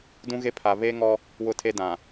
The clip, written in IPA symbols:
d ũ˦ ɣ e˦ pʰ a˨ β e˦ ŋ ɔ˦ | w ʊ˦ tʰ e˦ d ã˨

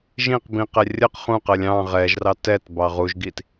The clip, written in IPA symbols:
ʒ ĩ q b ĩ q ɛ rʲ ə q χ ũ q ɜ lʲ ɑ̃ ʁ ɛ ʒ r ɑ t ɛ t b ɑ ʁ u ʒ ɡ i t

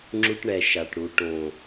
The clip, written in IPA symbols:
ŋ͡ǁ u˦ ʈ ɳ ɛ˨ ʃ a˨ ʈ ɽ u˨ ʈ õ˨

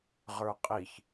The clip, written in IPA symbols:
ʁ ə˞ qʼ i ç

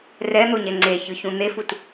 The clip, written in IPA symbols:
r ɛ n̪ o ɲ ɛ ŋ͡ǀ e ç ɯ ç ũ n̪ e f u t

